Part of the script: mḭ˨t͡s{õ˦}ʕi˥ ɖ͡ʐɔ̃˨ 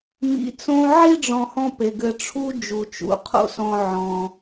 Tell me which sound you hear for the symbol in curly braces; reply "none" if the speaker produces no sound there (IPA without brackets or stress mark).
õ˦